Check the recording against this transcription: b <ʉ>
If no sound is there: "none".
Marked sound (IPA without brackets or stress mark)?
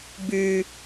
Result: ʉ